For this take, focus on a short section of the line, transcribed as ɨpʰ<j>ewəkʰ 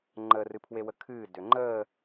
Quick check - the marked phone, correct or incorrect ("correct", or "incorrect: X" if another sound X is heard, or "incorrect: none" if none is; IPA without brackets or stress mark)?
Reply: incorrect: w